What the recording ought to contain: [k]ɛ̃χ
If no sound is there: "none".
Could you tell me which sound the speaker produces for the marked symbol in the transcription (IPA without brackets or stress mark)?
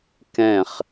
k